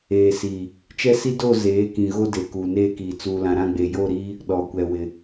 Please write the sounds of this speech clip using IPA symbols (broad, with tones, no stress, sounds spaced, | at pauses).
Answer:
eː˨ s iː˨ | t͡ʃ ɛ˦ s i˦ d o˦˨ z eː˨˦ k ĩ˨ ɣ o˦ d e˨ k uː˨ n eː˦ k iː˨ t͡s uː˨ l ã˨ ɾ ã˦˨ ɡ͡b e˨ j o˦˨ ɾ iː˦ | ɗ ɔ˨ kʷ ɛ˨ w ɪ˨